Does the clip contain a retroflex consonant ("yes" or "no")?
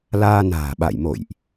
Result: no